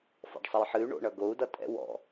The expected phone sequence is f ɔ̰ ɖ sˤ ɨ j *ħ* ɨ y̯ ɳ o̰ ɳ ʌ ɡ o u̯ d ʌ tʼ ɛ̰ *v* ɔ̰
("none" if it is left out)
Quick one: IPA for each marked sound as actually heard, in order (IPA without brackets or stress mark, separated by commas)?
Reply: ħ, w